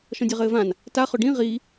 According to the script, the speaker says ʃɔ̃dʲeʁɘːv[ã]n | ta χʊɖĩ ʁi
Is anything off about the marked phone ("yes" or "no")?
no